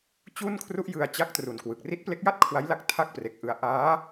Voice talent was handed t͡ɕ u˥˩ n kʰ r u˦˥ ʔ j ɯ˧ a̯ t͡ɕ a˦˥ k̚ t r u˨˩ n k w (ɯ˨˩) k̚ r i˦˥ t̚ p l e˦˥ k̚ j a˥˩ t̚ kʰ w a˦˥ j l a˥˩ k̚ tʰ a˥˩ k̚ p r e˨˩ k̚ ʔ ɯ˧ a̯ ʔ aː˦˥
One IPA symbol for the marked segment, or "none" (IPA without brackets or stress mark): ɯ˨˩